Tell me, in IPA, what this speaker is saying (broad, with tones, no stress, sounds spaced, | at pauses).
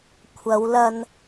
kʷʰ ɐ˨˧ w l ɐ˧ n